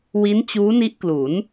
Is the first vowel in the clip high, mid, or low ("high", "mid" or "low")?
high